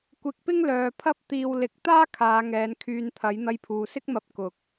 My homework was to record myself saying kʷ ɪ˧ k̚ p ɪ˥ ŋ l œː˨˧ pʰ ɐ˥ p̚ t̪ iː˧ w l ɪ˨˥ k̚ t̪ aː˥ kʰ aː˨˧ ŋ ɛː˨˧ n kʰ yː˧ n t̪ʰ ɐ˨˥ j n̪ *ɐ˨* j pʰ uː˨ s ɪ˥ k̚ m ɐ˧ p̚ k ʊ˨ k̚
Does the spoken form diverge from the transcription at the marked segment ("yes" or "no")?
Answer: yes